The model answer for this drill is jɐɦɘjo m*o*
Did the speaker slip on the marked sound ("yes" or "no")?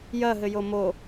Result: no